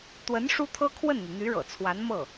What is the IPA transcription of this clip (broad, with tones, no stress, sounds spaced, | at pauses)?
t̪ w ə˧˥ n ʂ u˥ t̪ʰ ɤ˥ kʰ w ə˥˩ n n̪ y˩ n̪ y˧˥ ɻ ɤ̰˨˩ t͡sʰ w a˧˥ n m ɤ˥˩